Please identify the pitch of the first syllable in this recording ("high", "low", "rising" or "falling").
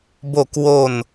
falling